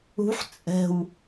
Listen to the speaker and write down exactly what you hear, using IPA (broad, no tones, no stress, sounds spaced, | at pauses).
ṳ ħ t͡sʼ ɛ̤ w